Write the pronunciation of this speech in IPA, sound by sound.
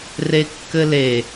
r e kː ɘ l e

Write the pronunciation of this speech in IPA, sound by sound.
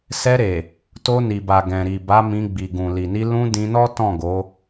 s ɛ˧ ɾ e˨ | t o˧ n i˨ b a˨ ɡ ɛ̃˨ ɾ i˨ b a˨˦ m ĩ˧ ɡ͡b i˨ ɡ ũ˨ l i˨ n i˧ l ũ˧ d ĩ˧ n ɔ˦ t ɔ̃˦˨ ɡ o˨˦

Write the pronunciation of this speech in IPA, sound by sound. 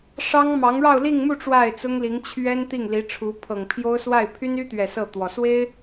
ʂ ɑ˥ ŋ m ɑ˧˥ ŋ ɻ ɑ˥˧ ʊ̯ l i˥˧ ŋ m u˥˧ ʈ͡ʂ w a˥˩ ɪ̯ t͡s ʊ˥ ŋ l i˧˥ ŋ t͡ɕʰ ɥ ɛ˥ n t̪ i˥˩ ŋ l i˧˥ ʈ͡ʂʰ u˧˥ pʰ ɤ˨˩ ŋ pʰ j o˥ ʊ̯ s w a˥˩ ɪ̯ pʰ y˥ n y˥ t̪ ɥ ɛ˨˩ s ɤ˥˩ t̪ w ɔ˨˩ s w e˥ ɪ̯

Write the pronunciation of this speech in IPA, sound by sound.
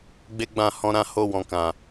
ɡ͡b e˦ ɡ͡b ã˦˨ h ɔ̃˧ ɾ ã˧ h o˧ w ɔ̃˨ k ã˨

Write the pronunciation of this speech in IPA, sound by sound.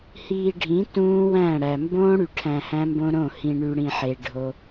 h iː˨ ɖʱ ĩ˨˦ t ũː˦ w æ̃˦˨ ɽ æ˨ m b õː˦ ɽ y˨ ʈʰ æ̃˨ h æ̃˦ m b õ˦ ɾ õ˦˨ h ĩ˨ ɳ y˨ ɽ ĩ˨ ħ e˨ ɖʱ o˦

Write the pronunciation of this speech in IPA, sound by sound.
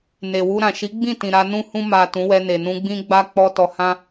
n e˨ w u˧ ɾ ã˨ ʃ i˨˦ ɡ͡b ĩ˦˨ t ĩ˨ ɾ a˧ n ũ˦ h ũ˧ m a˨ t ũ˨˦ w ɛ˧ n e˨ n ũ˧ ɡ͡b ĩ˦ ɡ͡b a˦ k͡p ɔ˧ t ɔ˧ h ã˦

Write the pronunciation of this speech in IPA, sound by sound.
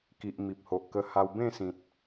k i˨ ʔ m i˨ p̚ h o˨ ʔ k ə˧ h a˧ w b ẽ˥˧ s ĩ˨ t̚

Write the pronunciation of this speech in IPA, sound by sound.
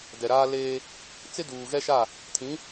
d ɛ˨ ɾ aː˦ l eː˦ | t͡s ɪ˦ d uː˨ ɣ ɛ˦ ʃ a˦˨ | tʰ ĩ˨˦

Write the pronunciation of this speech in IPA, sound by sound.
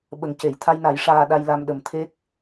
ɓ ə˨˩˦ ŋ c e˨˩˨ j t̪ʰ a˧ j n a˨˩˦ j ʂ aː˧ ɗ a˧ j l a˧ m ɗ ə˨˩˦ m t̪ʰ e˦˥ k̚

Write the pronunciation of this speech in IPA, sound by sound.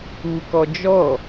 u k ɔ d͡ʒ ɔ

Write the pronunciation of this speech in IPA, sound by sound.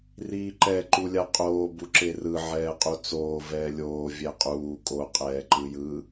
r iː ǃ ɛ ǃ u lʲ a qʼ oː b u ǁ e r ɯ ʕ ɛː qʼ u t͡s oː v ɛː lʲ oː vʲ ɛ qʼ uː kʼ o qʼ ɛː ǃ ɯ j ɯ

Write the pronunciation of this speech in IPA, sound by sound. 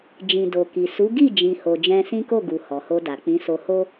d͡ʒ ĩ˨ d o˨ k i˨ s u˨˦ ɡ i˦˨ d͡ʒ ĩ˨ h o˨ d͡ʒ ɛ̃˧ s ĩ˦ k o˦˨ ɡ u˨ h ɔ˨ h o˧ d a˨ k͡p ĩ˨˦ s o˧ h o˦

